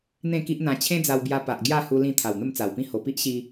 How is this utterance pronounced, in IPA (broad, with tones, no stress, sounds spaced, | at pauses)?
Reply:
n̪ ẽ˥˧ k i˦ ʔ n̪ ã˧ t͡ɕʰ ẽ˦ d͡z a˧ w b j a˧ p a˨ ʔ ɡ j a˥˧ h u˦ l ĩ˥˧ t̪ʰ a˨˩ w n̪ ə˥˧ m t͡s a˨˩ w p ĩ˥˧ h o˨˩ p i˦ ʔ ɕ i˧